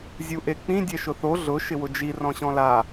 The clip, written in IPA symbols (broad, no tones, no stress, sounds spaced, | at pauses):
zʲ u ʔ e k͡p ĩ dʲ ɛ ʃ ʊ θ o ɮ ʊ ʃ ɪ w ʊ d͡ʒ i r ɔ̃ ɕ ɔ̃ l a